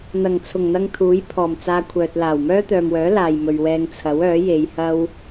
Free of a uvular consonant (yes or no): yes